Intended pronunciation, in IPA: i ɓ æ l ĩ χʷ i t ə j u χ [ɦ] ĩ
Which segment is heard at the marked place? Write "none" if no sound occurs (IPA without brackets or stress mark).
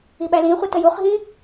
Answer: ɦ